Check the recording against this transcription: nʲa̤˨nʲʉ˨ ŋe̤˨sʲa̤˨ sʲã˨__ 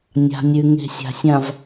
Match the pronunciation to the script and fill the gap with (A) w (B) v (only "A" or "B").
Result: B